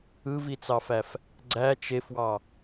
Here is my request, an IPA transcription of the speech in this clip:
ɯvit͡sɑfæf | ɡ͡ǀæ t͡ʃefwɑ

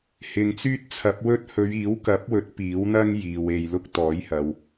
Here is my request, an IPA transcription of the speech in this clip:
hɪ˨ŋt͡syː˥t̚t͡sʰɐ˨˥p̚wɵ˥t̚ hɵ˨˧ɥiː˨˥wkɐ˨˥p̚wɵ˨˥t̚ piː˨˥wn̪ɐ˥ŋ jiː˨we˧jlʊ˥k̚ t̪ɔː˨˥jhɐ˨w

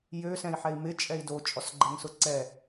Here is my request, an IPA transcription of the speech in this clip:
jø sɛ̃i̯ħɛi̯mɪ t͡ʃʼɛi̯do t͡ʃʼɔsɡ͡ǃɛŋsʊǀɛ

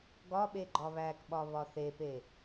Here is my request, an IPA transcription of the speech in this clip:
ɡɒ ɓeɡ͡ǃɒβækɓɒ βɒθepe

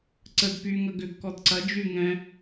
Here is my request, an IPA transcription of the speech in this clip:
ǀəd py ŋɐɡʏɡ kɔdǀɐ d͡ʒy ŋɛ̃

